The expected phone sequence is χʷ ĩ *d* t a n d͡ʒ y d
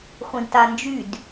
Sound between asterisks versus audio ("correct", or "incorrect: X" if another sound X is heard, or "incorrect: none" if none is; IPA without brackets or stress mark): correct